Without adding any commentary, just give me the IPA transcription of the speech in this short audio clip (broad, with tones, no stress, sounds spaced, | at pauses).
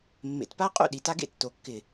mː ḛ˨˩ t p a˦ qʼ ṵ˥˨ ɗ i˨˩ t a˦ ɡ ḛ˥˨ tː o˨˩ kː ɪ˨˩